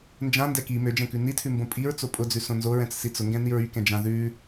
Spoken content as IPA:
n d͡ʒ ã n d ɛ k i m ø d͡ʒ ɛ̃ k ʉ n i tʰ ʉ m b õ pʼ i ɹ t͡s o pʼ ʊ d͡z ʉ s õ n z o ɹ ɛ̃ t͡s s i t͡s ʊ ŋ ɡ ɛ̃ n i ɹ y k ɛ̃ d͡ʒ ã ð ʉ

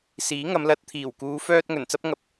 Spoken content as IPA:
s iː˨˥ ŋ ɐ˨˧ m l ɐ˧ t̚ t̪ʰ iː˨˩ w k uː˨˧ f œː˧ t̚ ŋ ɵ˨˩ n t͡s ɐ˥ p̚ ŋ ɐ˨ p̚

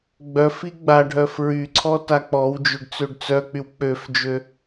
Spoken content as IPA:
ɡ͡b œ f i ɡ͡b a ɖʱ œ f ɹ y ǀʰ ɔ t a k͡p ɔ w d͡ʒ ø ɖ t͡s ø ɖ t͡s œ k͡p y w k͡p ø f d͡ʒ ø

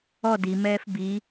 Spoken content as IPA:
ɔ d i m ɛː f b i

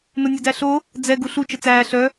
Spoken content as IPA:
n ʊ nʲ ʊ d æ ɬ o | d͡z ɛ ɡ u ɬ u t͡ʃ ə t͡s æː ɬ œ

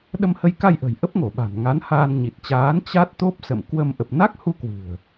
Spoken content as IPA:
ɗ ə˧ m h ə˧ j k a˧ j ʔ ə̤˨˩ j ʔ ə˦˥ p̚ ŋ o˧˩ ɓ a̤˨˩ n ŋ a˨˦ n h aː˧ n ɲ i˨˩ t̚ t͡ɕ aː˨˦ n t͡ɕ a˦˥ t̚ t̪ o˦˥ p̚ s ə̰˧˨ m k w ə˧ m ʔ ə˨˩ p̚ n a˦˥ k̚ h u˧ k w ɨ̤˨˩ ə̯

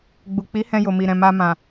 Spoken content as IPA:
ɡ͡b u˨ k͡p i˨˦ h ɛ̃˧ j o˨ m i˨ ɾ ɛ̃˨ m a˧ m ã˨

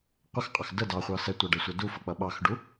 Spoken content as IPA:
qʷ ə x qʼ ɑ x d ə d ɑ χʷ ɑ s ɛ tʷ ɑ ɖ ɛ sʷ ʌ d u f ʌ k͡p ʌ ɓ ɑ x ɖ u

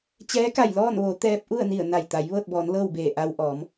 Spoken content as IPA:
t͡ɕ ɛː˧˥ k a˧˩ j l ɔː˥˨ n ʋ o˩˧ t̪ ɛː˧ p̚ ʔ u˥˨ ə̯ n i˧˩ ə̯ n a˧˩ j t̪ a˩˧ j ʋ ɤː˥˨ t̚ b ɔː˩˧ n l ɤː˥˨ w b eː˧˩ ʔ a˧ w ʔ ɔː˩˧ m

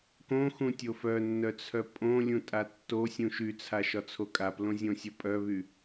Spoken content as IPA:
k õ x ũ tʲ o f œ nː œ t͡sʰ œ pʼ õ lʲ ũ tʼ a tː o sʲ ũ ʃ y t͡sʰ a ʃ ɒ t͡sʰ o kʼ a p l õ zʲ õ sʲ ɒ pʼ œ β y

